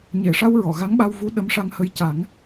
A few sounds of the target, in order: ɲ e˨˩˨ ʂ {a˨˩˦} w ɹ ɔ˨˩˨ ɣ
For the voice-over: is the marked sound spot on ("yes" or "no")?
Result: no